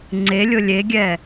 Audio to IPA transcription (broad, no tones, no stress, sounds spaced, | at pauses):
ŋ͡ǀ e lʲ ʊ lʲ e ɡʲ ɛ